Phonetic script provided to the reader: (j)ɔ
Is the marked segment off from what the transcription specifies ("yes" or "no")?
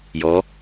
no